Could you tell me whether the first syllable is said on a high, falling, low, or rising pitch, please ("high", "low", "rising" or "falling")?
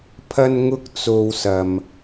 high